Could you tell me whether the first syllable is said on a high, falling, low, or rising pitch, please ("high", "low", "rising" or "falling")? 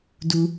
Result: low